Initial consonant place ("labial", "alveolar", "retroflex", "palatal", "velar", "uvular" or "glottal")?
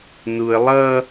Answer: alveolar